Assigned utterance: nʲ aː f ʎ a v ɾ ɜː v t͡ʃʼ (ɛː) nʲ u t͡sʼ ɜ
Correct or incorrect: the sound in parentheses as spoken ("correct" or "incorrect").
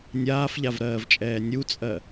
correct